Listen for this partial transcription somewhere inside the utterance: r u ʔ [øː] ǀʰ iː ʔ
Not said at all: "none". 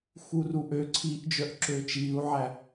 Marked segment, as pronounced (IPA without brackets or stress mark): ø